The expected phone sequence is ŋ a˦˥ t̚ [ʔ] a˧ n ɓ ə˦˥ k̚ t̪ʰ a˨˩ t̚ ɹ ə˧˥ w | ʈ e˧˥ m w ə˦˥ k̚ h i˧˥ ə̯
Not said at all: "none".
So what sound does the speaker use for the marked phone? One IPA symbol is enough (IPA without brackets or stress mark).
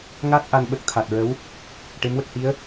ʔ